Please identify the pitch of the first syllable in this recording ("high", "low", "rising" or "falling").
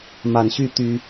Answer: low